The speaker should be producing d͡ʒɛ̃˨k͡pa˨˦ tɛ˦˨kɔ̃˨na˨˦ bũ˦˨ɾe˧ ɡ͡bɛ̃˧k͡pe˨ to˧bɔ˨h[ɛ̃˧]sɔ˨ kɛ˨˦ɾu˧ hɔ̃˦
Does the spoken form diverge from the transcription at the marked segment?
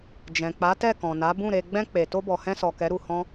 no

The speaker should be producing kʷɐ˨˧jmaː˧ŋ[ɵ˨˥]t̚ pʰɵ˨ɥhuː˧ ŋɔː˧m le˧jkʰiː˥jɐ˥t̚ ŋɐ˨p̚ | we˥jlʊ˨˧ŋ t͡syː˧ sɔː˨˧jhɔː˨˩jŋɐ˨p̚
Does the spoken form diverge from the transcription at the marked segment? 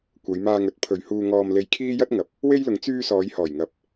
no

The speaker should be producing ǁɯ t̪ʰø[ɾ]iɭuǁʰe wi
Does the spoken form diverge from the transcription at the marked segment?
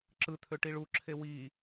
yes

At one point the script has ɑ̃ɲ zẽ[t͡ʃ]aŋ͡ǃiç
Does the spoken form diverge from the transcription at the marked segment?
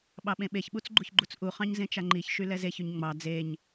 no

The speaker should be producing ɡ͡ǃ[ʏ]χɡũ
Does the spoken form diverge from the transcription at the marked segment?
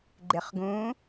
yes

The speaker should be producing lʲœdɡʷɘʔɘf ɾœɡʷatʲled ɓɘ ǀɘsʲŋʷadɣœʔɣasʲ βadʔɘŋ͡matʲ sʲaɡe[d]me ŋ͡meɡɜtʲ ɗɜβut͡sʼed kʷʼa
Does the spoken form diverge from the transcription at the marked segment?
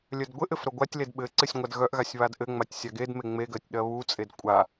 no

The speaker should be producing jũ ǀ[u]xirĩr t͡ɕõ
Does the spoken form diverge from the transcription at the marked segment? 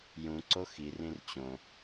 yes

